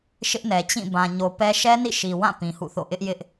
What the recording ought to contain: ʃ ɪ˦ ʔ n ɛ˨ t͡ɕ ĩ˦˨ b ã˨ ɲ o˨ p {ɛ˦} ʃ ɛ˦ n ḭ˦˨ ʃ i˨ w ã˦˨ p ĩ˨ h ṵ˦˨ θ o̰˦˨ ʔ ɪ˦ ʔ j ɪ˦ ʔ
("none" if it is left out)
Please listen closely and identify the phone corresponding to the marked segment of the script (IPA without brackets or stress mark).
ɛ˦